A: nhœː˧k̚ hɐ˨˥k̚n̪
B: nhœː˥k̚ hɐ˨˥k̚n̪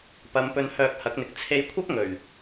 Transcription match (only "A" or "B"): A